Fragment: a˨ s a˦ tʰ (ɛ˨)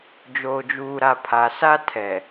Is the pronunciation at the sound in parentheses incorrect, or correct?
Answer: correct